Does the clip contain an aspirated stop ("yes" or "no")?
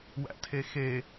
yes